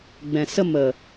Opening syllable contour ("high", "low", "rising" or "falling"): low